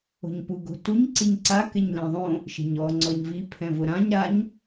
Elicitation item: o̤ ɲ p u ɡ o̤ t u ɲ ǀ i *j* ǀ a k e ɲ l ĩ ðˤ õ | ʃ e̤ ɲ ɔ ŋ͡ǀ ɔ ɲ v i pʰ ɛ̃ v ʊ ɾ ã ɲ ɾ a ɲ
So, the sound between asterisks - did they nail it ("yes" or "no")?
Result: no